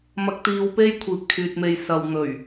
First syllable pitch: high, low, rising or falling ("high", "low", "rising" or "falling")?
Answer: low